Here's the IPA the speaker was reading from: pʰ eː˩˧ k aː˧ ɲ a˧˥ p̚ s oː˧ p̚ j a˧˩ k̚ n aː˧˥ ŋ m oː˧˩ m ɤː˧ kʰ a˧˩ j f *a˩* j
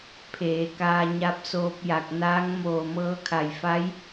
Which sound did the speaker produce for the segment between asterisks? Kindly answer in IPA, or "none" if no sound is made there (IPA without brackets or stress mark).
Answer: a˧˥